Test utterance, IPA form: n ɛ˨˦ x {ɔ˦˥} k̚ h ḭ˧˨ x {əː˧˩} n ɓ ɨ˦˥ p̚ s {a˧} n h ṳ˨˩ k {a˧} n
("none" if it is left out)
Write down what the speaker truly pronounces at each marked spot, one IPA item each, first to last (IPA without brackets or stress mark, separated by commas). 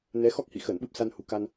ɔ˦˥, əː˧˩, a˧, a˧